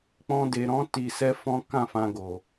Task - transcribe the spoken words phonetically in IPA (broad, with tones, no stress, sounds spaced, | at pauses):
k͡p ɔ̃˧ d e˨ ɾ ɔ̃˨˦ t i˧ s ɛ˦ f ɔ̃˦ k ã˦˨ f ã˧ ɡ o˨